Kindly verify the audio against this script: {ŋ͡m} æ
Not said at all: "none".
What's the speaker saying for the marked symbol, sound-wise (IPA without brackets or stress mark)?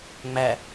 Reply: ŋ͡m